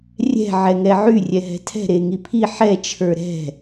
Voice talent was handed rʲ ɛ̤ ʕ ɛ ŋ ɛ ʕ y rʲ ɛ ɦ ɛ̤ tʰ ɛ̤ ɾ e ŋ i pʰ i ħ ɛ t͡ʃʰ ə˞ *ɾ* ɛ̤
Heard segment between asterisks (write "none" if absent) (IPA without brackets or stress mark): ɾ